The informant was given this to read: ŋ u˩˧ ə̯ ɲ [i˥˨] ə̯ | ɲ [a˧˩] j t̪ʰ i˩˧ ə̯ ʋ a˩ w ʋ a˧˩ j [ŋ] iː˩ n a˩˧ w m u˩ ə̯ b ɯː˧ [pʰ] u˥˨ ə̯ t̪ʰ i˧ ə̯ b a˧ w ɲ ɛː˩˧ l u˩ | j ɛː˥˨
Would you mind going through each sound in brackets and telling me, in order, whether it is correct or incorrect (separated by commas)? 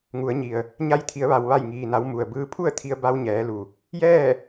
incorrect, incorrect, correct, correct